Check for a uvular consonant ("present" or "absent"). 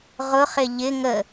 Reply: present